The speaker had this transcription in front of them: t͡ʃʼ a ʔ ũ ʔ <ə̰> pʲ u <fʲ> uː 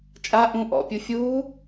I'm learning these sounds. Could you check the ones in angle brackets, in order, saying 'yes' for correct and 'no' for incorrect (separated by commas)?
no, yes